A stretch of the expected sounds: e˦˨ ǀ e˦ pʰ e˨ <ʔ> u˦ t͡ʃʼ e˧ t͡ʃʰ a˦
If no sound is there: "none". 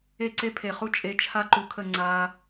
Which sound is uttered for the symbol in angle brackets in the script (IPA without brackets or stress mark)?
χ